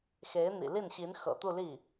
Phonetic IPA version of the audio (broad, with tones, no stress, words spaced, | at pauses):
xe˧˥ɪ̯n̪ḭ˨˩li˥˩nɕi˧˥n xɤ̰˨˩ t̪u˥˧li˥˩